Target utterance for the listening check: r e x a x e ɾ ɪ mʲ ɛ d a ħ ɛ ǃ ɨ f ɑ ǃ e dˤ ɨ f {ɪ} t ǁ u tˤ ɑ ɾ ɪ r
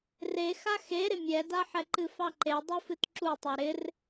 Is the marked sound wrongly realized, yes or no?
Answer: yes